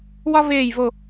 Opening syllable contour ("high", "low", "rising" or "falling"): high